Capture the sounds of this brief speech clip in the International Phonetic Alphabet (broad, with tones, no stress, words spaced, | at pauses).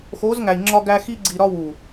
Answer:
xo˨˦zŋæ˨i̯ŋ͡ǁɒ˧ ɡæ˧ xi˧ɡ͡ǀi˨ɾɒ˧ wu˨